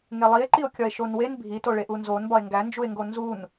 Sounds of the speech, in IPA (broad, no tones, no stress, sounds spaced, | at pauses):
ŋ e lˠ i e̯ ǃ i o̯ kʲ ɒ e̯ ʃ o n w e n bʱ i t o ɭ e ʔ u n z o n b ɒ e̯ ŋ ɡ æ n d͡ʒ u e̯ ŋ ɡ o n z u n